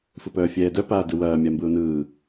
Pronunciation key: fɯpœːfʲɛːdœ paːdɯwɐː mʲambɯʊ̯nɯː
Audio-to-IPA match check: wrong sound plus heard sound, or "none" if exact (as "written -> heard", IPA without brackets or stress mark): none